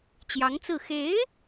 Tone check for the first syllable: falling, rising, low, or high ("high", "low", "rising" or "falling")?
rising